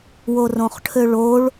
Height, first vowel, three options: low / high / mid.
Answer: mid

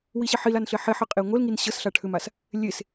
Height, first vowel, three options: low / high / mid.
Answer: high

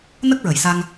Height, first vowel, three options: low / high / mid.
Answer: mid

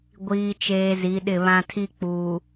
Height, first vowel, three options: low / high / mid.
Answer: high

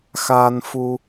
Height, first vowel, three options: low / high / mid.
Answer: low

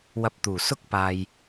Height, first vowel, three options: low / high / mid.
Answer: low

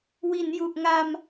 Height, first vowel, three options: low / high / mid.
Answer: high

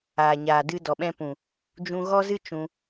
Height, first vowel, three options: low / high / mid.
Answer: low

